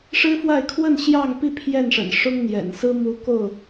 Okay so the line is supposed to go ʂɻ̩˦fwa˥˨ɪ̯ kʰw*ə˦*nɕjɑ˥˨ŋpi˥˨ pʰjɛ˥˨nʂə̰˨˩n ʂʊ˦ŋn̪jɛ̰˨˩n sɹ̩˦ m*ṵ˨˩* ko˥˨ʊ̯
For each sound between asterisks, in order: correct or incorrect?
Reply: incorrect, incorrect

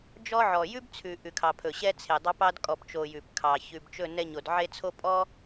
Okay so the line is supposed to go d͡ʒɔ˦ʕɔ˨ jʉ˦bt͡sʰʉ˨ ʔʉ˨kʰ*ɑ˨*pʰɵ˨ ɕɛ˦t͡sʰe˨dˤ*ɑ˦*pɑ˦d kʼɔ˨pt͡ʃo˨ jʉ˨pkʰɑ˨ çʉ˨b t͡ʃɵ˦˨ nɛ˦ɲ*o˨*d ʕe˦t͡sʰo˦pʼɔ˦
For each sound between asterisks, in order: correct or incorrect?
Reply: correct, correct, correct

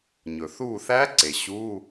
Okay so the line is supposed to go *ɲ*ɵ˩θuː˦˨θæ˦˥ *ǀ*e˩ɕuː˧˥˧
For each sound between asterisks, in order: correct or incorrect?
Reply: correct, correct

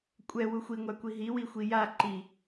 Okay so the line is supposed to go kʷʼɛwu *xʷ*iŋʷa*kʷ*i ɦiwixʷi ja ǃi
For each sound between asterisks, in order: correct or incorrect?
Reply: correct, correct

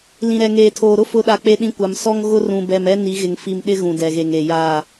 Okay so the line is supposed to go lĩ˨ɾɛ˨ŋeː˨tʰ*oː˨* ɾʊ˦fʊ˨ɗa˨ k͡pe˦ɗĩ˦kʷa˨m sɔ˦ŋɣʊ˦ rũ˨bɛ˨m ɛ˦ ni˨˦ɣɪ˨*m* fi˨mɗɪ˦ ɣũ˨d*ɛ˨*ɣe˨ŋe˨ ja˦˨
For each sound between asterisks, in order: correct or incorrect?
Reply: correct, incorrect, correct

